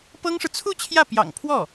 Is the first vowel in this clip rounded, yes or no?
no